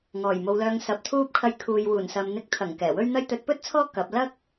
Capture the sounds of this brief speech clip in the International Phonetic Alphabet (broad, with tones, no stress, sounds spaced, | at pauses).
ŋ ɔː˨˩ j m o˨˧ w l œː˧ ŋ s ɐ˧ p̚ t̪ʰ uː˥ p̚ kʰ ɐ˧ j kʰ uː˨ j w uː˨˩ n s ɐ˨ m n̪ ɪ˨˥ k̚ t̪ʰ ɐ˨˩ ŋ k ɛː˨˩ w ɵ˥ ɥ n̪ ɐ˥ j t̪ ɵ˨˥ t̚ p ɵ˥ t̚ t͡sʰ ɔː˥ k ɐ˨˥ p̚ l ɐ˥ k̚